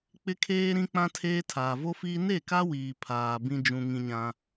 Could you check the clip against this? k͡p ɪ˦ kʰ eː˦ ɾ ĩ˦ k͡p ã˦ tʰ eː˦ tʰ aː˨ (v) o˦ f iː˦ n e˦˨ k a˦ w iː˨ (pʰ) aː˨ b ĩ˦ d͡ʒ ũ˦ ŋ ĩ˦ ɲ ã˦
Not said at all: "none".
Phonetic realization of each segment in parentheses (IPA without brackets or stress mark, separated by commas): v, pʰ